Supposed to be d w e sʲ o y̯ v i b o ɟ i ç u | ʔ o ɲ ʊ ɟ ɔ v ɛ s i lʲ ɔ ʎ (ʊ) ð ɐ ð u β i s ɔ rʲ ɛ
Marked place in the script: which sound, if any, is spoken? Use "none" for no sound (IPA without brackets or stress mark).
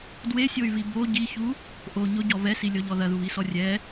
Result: ɔ